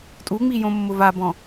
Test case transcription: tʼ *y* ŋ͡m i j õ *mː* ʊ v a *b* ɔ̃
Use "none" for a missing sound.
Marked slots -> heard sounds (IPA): u, mː, b

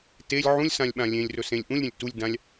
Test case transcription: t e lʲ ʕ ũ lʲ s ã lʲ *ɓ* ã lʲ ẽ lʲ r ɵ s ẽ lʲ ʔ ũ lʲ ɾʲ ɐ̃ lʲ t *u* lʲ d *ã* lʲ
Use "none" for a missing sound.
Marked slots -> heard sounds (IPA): ɓ, u, ã

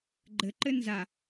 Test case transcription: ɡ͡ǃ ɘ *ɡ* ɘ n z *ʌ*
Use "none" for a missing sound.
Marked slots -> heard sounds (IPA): ǃ, a

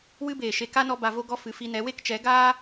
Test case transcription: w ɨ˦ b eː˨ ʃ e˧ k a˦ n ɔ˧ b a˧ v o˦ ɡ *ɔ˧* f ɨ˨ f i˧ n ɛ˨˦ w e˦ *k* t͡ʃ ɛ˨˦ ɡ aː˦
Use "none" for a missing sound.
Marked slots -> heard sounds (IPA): ɔ˦, k

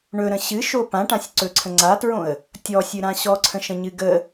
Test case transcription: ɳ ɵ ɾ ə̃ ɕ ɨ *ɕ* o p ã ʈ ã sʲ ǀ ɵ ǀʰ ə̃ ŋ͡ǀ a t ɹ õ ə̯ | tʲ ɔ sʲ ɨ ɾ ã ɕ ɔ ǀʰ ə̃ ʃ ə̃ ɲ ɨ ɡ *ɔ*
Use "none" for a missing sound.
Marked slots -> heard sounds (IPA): ʃ, ə

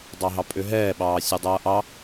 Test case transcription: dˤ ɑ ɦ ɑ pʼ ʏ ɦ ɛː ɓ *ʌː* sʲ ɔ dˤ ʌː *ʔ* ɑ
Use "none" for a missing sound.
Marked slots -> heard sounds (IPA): ɑː, ʔ

